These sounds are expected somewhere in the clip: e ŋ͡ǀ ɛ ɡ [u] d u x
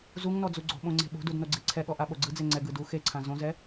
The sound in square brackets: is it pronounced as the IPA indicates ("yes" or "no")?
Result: no